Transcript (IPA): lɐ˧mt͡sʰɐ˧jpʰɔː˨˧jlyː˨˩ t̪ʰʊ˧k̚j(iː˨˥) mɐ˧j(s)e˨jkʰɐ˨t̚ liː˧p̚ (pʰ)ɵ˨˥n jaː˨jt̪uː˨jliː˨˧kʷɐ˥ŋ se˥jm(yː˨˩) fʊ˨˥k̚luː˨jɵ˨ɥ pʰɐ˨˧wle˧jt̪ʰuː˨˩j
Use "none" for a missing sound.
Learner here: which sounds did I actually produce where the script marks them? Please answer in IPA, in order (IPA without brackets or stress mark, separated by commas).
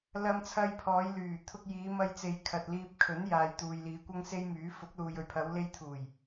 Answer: iː˨˧, t͡s, kʰ, yː˨˥